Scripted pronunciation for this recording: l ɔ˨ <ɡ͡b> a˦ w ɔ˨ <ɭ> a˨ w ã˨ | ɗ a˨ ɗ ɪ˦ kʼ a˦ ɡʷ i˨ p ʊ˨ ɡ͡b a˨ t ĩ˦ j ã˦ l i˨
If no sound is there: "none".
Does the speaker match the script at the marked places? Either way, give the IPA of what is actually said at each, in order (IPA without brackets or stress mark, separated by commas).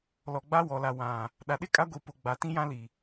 ɡ͡b, l